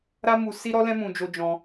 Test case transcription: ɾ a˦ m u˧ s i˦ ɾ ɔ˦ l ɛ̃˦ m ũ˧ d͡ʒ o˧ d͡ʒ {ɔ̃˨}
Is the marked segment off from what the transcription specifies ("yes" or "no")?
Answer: yes